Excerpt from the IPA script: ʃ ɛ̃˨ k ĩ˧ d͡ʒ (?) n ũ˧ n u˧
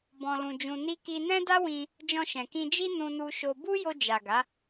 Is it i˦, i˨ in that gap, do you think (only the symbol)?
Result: i˦